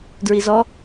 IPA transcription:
d ɹ i z ɔ

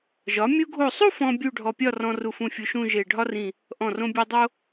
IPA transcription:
ʒ ɒ˩˧ mʲ u˧ ɡʱ o˧˩ sˤ u˥˧ f ɔ̃˥ bʲ u˥˧ ɖʱ ɔ˧ pʲ ɒ˥˧ r ɔ̃˧ r u˧˩ f ũ˧˩ fʲ u˧ ʃ ũ˥˧ ʒ e˧˩ ɖʱ ɒ˥ r ĩ˧˩ | ʔ ɔ̃˧˩ r õ˧ bʲ e˧ dˤ o˥

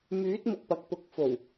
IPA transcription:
m yː˨˥ t̚ m ʊ˧ k̚ p ɐ˨˥ k̚ p ʊ˨˥ k̚ f o˨˩ w

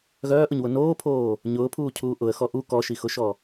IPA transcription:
ɣ œː ʔ ʊ ɲ w ʊ n oː pʰ oː | ɲ ʊː pʰ uː cʰ uː ʔ ʊ ə̯ x ɔ ʔ u k ɔ ʃ i x ʊ ʃ ɔ

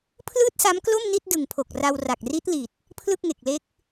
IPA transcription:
pʰ l ɯː˥˩ t̚ s a˦˥ m k l o˥˩ m n i˥˩ t̚ d ɯ˨˩ ŋ pʰ o˨˩ k̚ r a˧ w r a˨˩ k̚ r i˦˥ t̚ l i˨˩ t̚ | pʰ l ɯ˥˩ k̚ ŋ e˨˩ k̚ l e˦˥ k̚

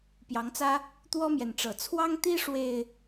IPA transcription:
p j ɑ˨˦ ŋ t͡s ä˦ | t̪ w ɔ˦ m j ɛ˨ n ʈ͡ʂ ɤ˨˩ t͡sʰ w ɑ˦ ŋ t̪ i˦ ʂ w e˨˩ ɪ̯

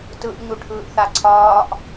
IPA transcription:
t ɯ ʔ ɲ u ʈʰ ɯː ʔ θ a ǀʰ ɒː ʔ

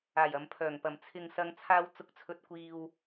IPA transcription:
aː˨˩ j ɐ˨ m pʰ œː˨˩ ŋ p ɐ˨˩ m t͡sʰ ɪ˨ ŋ s ɐ˨˧ ŋ t͡sʰ aː˧ w t͡s ʊ˨˥ k̚ t͡sʰ ɵ˨ t̚ kʷ iː˨ w

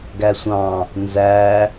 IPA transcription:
ɡ æ sʷ ɑ̃ | n z æ

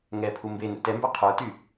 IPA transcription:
ŋ ɛ pʰ u m b e n ṵ t ɛ m b ə˞ qʰ ə˞ t y

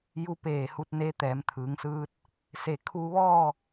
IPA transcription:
j u˧ p eː˧˩ h u˧ t̚ n e˧˥ t̪ ɛː˩˧ m t̪ʰ ɯː˩˧ ŋ s ɯː˧ t̚ | s e˧˩ kʰ uː˧ ʋ ɔː˥˨

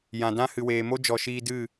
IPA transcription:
j ã˨ d ã˦ h ɨ˨ w eː˨ m o˦ d͡ʒ ɔ˨ ʃ iː˧ d ɨ˦˨

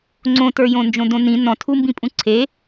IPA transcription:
ŋ͡ǀ õ t ə˞ j õ n d͡ʒ õ d õ n ĩ n ɔ̃ tʰ u m b ĩ pʼ ũ ǀʰ e

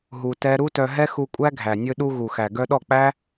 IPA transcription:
ɦ u˧ t ɛ˦ ɾ u˦ t œ˧ ɦ ɛ˦ x u˧ kʷʼ æ˦ ɡʱ æ˨ nʲ ɵ˧ ɗ u˧ ɣ u˨ x æ˨ ɡ œ˧ ɗ ɔ˦˨ k͡p æ˦

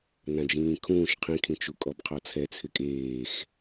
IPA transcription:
n ã d͡ʒ ĩː kʰ ũː ʃ qʰ ĩ kʰ ĩ t͡ʃ u kʼ ɔ b qʰ ɔ t͡sʰ ɛ t͡sʰ ɪ kʼ eː x

